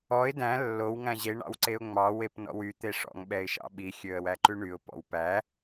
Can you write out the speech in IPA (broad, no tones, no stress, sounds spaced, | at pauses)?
ɔ ɪ̯ d æ̃ lː o w ŋ æ̃ ʑ e ɳ ɑ̰ w ǀ e ʊ̯ ŋ͡m ɑ w e p n ɔ̰ w y t̪ e ʂ ɔ̰ ŋ ɓ ɛ ɪ̯ ʃ ɑ̰ ɓ i xʲ ø ə̯ w æ ǃ ʉ ɳ y ʊ̯ p ɔ̰ w p æ